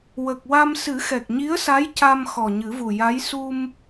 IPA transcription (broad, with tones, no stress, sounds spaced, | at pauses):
w ə˨˩ k̚ w a˧ m s ɨ˨˩˦ x ɛ˨˩ k̚ ɲ i˧˥ ə̯ s a˧˥ j c a˧ m x ɔ˨˩ ɲ ɨ˨˩˦ v u˨˩ j a˧˥ j s u˧ m